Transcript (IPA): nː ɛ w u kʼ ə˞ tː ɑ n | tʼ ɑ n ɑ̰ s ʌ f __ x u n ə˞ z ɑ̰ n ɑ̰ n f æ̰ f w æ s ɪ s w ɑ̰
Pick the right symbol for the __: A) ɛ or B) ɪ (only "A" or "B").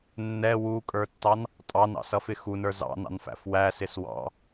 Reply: B